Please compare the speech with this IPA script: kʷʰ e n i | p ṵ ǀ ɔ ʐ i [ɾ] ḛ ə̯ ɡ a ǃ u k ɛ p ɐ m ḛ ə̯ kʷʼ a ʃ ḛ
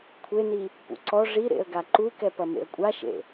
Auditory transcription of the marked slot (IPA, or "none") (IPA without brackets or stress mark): ɾ